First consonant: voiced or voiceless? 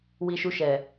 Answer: voiced